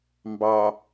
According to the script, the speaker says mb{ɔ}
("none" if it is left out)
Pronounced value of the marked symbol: ɑ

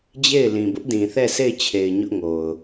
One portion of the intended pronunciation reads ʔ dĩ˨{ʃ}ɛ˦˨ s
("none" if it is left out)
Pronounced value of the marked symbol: θ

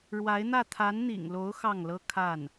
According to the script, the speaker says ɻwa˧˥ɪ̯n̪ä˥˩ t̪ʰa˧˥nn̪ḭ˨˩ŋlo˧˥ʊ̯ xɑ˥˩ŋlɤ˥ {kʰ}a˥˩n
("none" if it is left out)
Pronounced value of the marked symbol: kʰ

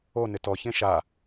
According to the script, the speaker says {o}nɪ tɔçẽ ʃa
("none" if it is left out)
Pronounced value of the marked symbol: o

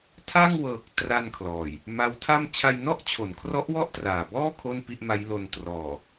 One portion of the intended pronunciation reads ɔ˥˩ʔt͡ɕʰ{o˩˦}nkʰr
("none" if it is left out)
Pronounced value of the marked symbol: o˩˦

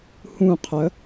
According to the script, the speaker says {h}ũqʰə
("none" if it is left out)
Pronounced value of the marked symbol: h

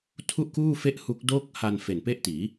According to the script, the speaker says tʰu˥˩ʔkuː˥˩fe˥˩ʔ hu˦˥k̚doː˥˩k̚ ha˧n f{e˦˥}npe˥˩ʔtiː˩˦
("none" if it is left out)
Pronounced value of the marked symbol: e˨˩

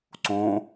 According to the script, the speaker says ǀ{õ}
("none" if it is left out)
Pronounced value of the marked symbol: õ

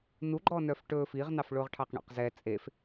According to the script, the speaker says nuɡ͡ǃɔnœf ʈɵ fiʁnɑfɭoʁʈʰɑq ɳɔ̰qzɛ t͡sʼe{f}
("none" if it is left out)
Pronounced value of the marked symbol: f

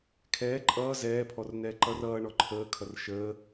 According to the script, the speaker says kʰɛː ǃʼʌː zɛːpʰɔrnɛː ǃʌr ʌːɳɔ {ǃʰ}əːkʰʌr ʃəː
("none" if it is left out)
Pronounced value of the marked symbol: ǃʰ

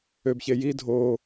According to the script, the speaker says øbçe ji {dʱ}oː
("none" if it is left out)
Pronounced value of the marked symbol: dʱ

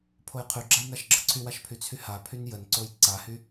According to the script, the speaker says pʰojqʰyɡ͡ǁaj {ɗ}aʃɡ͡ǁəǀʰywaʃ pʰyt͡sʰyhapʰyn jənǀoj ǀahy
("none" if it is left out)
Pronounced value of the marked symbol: n̪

